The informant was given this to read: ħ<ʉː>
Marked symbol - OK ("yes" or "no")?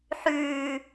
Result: yes